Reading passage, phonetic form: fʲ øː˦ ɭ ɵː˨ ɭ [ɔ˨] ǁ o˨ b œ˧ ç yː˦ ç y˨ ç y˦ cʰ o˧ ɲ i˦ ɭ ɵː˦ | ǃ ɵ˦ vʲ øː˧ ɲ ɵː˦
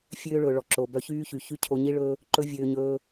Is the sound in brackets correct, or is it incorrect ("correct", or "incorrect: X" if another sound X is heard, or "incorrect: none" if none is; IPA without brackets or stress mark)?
correct